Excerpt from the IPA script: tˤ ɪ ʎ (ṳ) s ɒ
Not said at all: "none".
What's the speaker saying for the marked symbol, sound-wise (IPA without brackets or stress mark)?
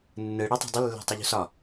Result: ṳ